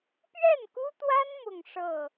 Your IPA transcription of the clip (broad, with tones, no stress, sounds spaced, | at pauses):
p ɥ ɛ˥˩ n k u˥ t̪ w a˥ n m ʊ˥˧ ŋ ʂ ɤ˥˩